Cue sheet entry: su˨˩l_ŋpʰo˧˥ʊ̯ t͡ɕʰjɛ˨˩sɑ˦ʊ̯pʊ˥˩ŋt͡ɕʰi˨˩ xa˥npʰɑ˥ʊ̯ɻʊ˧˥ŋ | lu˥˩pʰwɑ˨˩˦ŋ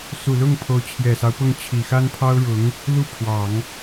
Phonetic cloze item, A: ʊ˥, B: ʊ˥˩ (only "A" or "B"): B